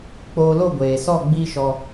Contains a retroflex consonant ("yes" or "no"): no